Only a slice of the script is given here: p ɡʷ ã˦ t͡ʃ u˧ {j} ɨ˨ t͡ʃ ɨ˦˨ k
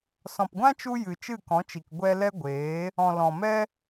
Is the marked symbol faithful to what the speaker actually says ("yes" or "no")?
yes